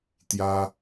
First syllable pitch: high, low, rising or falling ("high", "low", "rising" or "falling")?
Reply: high